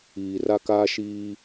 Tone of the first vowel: low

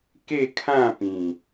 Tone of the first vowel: falling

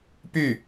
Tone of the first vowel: falling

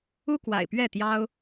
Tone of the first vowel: high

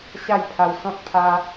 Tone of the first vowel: falling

